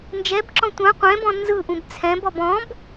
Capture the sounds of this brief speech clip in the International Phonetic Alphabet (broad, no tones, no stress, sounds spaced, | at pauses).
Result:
n d͡ʒ ɛ b ǁ ɔ̃ tʷ ã qʷ ɛ̃ b ɔ̃ n z ɯ ʔ ũ b t͡sʰ ɛ̃ b ɔ b ɔ̃ b